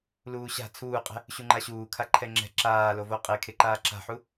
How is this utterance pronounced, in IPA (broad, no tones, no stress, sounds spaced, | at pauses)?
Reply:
l uː ɕ a̤ t͡sʰ uː qʼ ɛ̤ | ɕ u ŋ͡ǃ a ɕ uː kʰ a ǃʰ ɛ ŋ͡ǁ ɛ̤ ǁ aː l o v o qʼ e kʰ e ǃ aː ǁ a̤ ħ u